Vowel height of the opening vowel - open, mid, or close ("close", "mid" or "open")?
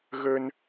mid